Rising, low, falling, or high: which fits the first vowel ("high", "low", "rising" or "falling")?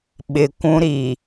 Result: low